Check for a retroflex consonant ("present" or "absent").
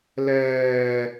absent